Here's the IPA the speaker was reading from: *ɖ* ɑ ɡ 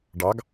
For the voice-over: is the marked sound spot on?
yes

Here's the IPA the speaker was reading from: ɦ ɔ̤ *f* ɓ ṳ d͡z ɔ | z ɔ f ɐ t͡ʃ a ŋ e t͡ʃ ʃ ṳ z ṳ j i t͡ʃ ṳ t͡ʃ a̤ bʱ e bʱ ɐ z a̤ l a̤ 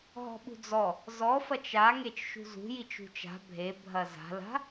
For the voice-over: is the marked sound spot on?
no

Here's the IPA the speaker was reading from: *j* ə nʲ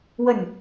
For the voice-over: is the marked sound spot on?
no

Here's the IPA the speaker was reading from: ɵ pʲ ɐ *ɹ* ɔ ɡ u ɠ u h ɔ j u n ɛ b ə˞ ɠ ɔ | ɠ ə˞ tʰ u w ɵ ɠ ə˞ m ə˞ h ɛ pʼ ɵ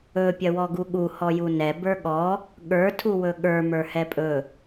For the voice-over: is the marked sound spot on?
no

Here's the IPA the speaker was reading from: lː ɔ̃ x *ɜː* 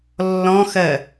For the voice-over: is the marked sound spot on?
no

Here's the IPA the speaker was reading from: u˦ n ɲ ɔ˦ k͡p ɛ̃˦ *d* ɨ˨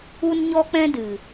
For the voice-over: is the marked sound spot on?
yes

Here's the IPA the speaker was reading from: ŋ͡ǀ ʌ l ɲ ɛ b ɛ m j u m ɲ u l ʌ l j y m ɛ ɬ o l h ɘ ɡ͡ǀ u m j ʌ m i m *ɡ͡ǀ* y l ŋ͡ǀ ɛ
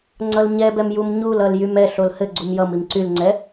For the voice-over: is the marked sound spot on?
no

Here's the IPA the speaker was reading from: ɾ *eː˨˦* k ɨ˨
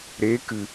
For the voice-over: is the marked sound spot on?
yes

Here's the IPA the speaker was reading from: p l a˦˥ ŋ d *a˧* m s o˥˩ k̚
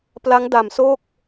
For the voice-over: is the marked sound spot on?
no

